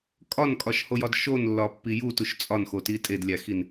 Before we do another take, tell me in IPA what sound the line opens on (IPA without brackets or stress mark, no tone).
kʼ